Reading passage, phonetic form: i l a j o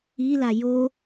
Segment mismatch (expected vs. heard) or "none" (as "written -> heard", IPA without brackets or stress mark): none